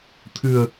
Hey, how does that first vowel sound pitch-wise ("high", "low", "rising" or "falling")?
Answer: low